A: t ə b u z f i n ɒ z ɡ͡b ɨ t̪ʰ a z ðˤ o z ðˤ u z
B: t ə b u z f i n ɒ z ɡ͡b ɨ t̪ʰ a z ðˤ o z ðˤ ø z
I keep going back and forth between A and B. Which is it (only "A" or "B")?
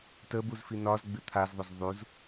A